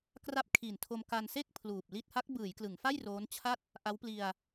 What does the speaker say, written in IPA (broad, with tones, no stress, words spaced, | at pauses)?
kra˦˥p̚kʰiː˨˩ntʰo˧m ka˧nse˥˩k̚ pʰluː˨˩p̚li˥˩t̚ ha˦˥k̚bɯː˩˦jklɯ˩˦ŋfa˥˩j roː˦˥nt͡ɕʰa˥˩t̚ | ʔa˦˥wpli˧a̯